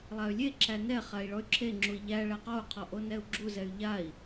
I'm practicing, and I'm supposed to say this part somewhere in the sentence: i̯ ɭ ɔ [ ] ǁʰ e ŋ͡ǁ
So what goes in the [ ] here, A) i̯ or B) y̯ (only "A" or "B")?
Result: B